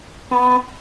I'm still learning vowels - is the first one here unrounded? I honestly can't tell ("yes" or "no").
no